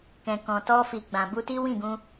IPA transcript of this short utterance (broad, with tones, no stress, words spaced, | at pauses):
kɛ̃˨kɔ̃˨tɔ˧ fi˨ɡ͡bã˨ bu˧ti˦ wĩ˦˨ɡũ˧